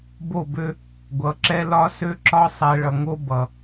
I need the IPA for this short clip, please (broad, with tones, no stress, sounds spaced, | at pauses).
b o˦˨ b ø˦ | ɡʷ ʌ˨˦ ǁ ɛ˦ l ɒ˦ s ø˦ ǁ ɒ˦ sˤ ɛ˨ ɭ ʌ˨ ŋ o˦ b ʌ˨